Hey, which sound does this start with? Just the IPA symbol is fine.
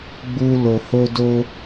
ɡ͡b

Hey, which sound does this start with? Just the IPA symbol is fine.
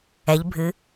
ɛ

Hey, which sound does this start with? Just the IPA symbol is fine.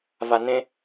v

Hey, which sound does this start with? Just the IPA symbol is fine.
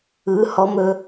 ɯ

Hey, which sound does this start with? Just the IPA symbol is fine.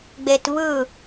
ɡ͡b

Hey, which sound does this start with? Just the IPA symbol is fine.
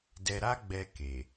d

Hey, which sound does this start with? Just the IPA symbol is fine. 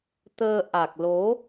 t̪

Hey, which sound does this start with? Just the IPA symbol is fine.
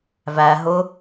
v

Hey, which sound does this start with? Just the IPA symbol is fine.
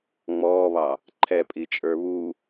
ŋ͡m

